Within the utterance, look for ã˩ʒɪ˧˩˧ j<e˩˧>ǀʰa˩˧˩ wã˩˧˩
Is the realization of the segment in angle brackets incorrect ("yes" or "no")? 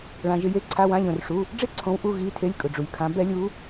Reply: no